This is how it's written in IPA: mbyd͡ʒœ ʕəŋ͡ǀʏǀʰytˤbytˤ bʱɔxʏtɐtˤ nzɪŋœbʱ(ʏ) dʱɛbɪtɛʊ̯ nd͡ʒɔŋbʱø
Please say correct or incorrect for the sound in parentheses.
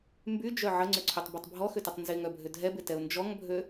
correct